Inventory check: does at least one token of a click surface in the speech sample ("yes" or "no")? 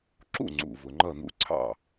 yes